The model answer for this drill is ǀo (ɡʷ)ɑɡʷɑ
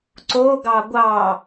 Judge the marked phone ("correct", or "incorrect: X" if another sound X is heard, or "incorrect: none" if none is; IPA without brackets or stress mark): incorrect: ɡ